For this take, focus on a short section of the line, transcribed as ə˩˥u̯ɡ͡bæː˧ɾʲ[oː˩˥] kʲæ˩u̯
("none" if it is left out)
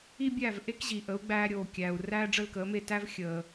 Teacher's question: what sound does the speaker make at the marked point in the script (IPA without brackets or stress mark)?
oː˩